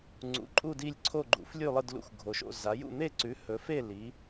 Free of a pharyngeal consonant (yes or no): yes